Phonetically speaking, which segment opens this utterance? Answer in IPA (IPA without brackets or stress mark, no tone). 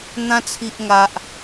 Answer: n̪